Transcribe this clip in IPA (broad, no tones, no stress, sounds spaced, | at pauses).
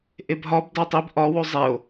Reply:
ʔ e b ɦ ɒ b d æ tˤ i b ʔ ɒ w o zˤ e o̯